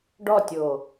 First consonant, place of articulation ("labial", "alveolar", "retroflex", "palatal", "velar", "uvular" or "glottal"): retroflex